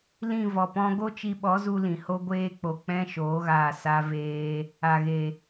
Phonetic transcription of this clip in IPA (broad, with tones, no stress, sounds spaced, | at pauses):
l ĩ˦˨ v ɔ˨ p ɔ̃˧ ɡ o˦ t͡ʃ i˧ ɓ ɔ˨˦ z u˧ l ĩ˨ h o˦ ɡʷ eː˧ k͡p o˨ k͡p ɛ̃˦ ʃ oː˨˦ ɣ aː˧ s a˧ v eː˧ | a˨ ɣ e˨